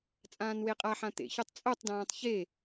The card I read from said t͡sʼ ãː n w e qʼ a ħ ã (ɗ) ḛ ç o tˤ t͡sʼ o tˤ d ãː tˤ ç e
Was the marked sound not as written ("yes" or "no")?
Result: yes